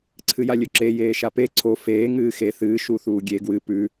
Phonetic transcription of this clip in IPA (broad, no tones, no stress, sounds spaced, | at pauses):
ǀʰ ɨ j a lʲ ɵ ǁ e j eː ʃ a p e ǀʰ o f eː ŋ ɨː x e θ ɨː ʃ u θ uː ɡʲ e ɡ w ɨ p ʉ